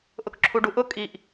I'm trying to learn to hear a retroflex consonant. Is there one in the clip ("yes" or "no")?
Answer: yes